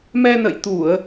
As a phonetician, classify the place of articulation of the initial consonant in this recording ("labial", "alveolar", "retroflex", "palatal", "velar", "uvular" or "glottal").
labial